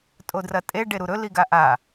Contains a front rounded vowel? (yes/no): no